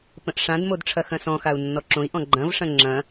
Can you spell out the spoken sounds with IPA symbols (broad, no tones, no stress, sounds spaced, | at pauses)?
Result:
p ə̃ ʔ ʂ ã d m o d ʈ͡ʂʰ ɐ x ɐ̃ s ɔ̃ x a u̯ nː ɔ ǁ õ i̯ ʔ ɔ̃ ɡ͡ǃ ɐ̃ v ʂ ɐ̃ ŋ͡ǁ ɐ̃